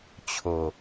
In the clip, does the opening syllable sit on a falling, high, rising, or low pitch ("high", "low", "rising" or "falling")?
low